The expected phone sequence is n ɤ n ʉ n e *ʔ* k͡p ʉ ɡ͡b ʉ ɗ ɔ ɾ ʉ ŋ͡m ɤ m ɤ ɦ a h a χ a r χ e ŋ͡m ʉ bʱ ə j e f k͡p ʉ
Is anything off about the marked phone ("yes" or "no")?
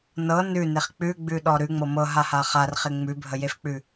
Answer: yes